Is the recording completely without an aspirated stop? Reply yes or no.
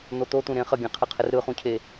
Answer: no